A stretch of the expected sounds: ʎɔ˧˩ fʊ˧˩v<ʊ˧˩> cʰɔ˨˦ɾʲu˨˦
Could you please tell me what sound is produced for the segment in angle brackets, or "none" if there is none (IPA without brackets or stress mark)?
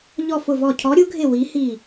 ɔ˧˩